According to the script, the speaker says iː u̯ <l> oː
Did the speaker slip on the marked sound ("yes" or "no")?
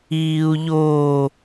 yes